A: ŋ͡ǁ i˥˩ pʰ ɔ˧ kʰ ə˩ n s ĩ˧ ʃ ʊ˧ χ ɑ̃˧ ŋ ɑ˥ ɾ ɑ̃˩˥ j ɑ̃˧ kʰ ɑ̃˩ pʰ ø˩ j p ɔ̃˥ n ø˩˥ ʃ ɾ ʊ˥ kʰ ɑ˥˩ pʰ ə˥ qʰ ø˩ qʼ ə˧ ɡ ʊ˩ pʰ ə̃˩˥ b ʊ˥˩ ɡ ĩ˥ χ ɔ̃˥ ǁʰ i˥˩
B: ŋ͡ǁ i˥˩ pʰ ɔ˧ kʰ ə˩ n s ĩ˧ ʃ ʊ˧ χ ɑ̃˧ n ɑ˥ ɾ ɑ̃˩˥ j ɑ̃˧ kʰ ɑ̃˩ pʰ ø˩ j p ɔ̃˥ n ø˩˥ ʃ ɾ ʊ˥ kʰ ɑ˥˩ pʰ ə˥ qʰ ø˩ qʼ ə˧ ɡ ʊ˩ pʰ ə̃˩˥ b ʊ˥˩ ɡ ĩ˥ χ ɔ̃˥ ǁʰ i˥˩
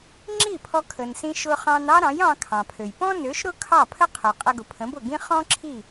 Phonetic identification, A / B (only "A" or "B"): B